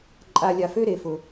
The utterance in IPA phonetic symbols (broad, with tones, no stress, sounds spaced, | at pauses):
ǃʼ a˧ lʲ a˧ f ø˦ ɾ e˧ f ʊ˧